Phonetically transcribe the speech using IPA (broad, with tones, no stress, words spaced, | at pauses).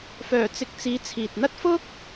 fœː˨˩t͡sɪ˨k̚ t͡siː˨˥t͡sʰiː˨t̚ n̪ɐ˥t̚fʊ˥k̚